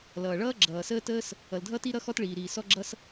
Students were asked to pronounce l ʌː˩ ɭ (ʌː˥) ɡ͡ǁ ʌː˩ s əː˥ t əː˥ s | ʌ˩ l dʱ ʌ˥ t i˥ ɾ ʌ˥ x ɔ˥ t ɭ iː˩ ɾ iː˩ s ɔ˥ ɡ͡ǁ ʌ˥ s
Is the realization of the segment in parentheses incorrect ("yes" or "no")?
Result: no